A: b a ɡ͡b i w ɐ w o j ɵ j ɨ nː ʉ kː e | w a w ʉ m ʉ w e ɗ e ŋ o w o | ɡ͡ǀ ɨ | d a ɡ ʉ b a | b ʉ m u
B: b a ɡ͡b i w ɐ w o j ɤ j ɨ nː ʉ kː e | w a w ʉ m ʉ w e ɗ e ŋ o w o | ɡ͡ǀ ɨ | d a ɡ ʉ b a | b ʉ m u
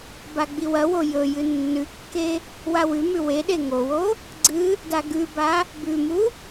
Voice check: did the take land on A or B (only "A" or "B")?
A